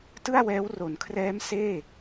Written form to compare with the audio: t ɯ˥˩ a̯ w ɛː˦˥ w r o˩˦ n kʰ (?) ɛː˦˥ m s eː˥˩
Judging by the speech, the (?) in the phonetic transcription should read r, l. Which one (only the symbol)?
r